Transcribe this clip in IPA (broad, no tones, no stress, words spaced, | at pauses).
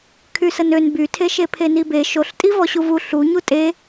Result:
kʰysənøn bytʰe ʃepʰenibe ʃoɬtʼi vɔɕuvu ɬu ɲutʼe